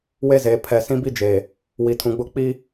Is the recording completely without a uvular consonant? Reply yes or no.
yes